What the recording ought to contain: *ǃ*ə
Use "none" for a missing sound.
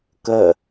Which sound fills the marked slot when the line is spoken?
k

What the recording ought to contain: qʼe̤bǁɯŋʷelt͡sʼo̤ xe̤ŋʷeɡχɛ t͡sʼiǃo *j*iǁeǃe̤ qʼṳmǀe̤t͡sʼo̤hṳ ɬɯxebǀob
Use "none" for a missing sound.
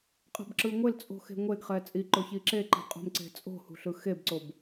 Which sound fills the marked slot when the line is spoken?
ç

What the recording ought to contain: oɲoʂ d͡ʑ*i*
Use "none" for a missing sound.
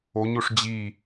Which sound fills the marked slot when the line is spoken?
i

